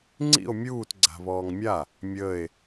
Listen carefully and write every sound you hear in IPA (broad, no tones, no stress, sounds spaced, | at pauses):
ŋ͡ǀ ḭ o̯ mʲ uː t ɡ͡ǀ a̤ β ɔː ŋ mʲ a | mʲ əː e̯